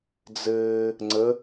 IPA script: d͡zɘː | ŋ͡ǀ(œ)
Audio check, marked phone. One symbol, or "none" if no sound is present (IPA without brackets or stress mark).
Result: ə